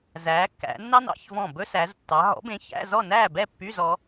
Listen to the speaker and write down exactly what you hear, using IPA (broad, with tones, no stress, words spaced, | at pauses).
zæː˨˦kːæ̰˨˦nːɑ˥n ɑ̰˧˥˧çvɔ̃˥˨ bɵ˥sæ˨˦ztːɑ˨˦ ɦɔ̰˨˦bẽ˨˦ çæ̰˧˥˧ zɔ˥˨næː˥˨bɛ˥˨ pːy˧˥˧zɔ˨˦